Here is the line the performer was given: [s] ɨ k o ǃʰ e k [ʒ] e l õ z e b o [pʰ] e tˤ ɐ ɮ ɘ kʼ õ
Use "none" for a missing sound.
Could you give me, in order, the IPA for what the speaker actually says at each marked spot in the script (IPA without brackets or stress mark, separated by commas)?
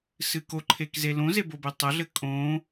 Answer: s, z, b